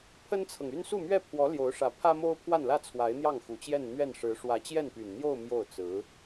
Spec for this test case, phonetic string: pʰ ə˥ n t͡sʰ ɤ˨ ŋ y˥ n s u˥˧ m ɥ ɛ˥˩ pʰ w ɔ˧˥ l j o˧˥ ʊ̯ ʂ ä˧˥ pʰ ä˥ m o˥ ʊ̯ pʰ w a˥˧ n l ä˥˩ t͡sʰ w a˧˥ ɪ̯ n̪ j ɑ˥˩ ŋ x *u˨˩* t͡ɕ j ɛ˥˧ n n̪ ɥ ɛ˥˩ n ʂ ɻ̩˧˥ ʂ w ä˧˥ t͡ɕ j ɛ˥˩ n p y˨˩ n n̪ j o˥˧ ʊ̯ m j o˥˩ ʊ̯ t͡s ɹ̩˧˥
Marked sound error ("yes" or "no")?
no